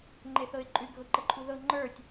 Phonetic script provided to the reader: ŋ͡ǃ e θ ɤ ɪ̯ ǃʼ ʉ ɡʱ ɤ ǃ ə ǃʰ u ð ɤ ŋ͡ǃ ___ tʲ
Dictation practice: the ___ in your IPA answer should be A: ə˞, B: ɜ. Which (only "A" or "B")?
A